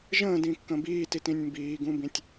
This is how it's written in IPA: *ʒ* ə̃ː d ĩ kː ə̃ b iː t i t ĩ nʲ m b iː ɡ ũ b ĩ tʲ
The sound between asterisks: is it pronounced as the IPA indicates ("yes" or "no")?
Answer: yes